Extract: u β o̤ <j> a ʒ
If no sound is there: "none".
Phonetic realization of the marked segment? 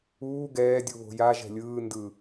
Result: j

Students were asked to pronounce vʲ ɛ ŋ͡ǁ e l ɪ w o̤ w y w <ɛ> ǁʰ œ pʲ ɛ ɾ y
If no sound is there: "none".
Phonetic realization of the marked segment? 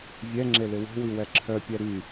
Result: ɛ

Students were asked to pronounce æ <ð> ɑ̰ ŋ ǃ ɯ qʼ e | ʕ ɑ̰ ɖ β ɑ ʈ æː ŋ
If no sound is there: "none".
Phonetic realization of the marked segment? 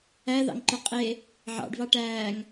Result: ð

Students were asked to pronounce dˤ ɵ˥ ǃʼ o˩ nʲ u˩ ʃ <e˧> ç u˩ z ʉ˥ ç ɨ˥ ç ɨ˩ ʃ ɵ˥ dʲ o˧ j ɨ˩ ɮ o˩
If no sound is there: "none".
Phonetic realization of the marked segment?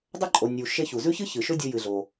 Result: e˧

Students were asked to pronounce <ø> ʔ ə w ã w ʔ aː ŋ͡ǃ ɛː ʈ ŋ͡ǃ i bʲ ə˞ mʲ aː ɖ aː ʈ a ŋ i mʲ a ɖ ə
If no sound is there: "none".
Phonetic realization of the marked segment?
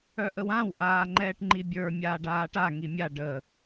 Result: œ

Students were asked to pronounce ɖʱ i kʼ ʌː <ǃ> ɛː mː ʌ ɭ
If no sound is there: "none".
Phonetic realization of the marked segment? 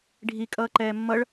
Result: ǃ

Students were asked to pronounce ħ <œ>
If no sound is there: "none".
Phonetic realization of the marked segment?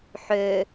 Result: ø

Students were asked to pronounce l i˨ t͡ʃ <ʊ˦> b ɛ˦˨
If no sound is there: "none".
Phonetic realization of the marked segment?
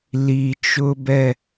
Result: ʊ˦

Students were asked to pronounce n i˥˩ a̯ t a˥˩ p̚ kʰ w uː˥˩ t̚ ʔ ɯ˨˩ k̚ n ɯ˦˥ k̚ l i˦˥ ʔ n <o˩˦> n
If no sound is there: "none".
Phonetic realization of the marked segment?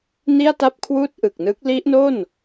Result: o˥˩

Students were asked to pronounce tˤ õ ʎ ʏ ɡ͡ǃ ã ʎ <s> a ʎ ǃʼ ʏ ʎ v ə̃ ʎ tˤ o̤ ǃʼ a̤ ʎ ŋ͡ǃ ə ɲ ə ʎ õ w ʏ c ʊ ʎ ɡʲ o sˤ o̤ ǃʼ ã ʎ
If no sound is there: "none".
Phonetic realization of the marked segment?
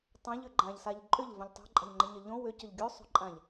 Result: s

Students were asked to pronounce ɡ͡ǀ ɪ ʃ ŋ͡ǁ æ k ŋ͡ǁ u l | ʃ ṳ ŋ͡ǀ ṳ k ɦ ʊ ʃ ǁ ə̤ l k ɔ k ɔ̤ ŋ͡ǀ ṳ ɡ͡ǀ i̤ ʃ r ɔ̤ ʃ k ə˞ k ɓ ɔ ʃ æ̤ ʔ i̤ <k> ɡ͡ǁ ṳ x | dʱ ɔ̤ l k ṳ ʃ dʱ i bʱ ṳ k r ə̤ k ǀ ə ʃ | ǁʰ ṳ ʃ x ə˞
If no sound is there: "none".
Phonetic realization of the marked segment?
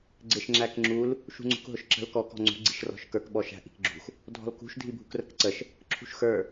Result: k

